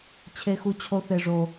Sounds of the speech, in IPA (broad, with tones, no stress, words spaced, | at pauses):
t͡ɕʰe˥xu˥t͡ɕʰo˥ θe˥ʐo˥